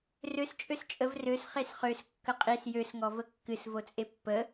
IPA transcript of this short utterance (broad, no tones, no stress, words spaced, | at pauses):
røs t͡ʃʼøst͡ʃʼəv røs χesχøs kːəqʼis jøsŋɔ vəkːɨs vot͡sʼepːə